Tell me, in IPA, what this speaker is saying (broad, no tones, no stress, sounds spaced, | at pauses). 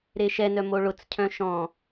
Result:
ɾ e ʃ ɛ n œ m o ɭ ʊ t͡s cʰ œ̃ ʃ ɔ̃